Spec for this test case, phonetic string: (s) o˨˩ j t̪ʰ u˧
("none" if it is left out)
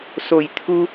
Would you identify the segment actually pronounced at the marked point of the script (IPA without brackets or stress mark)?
s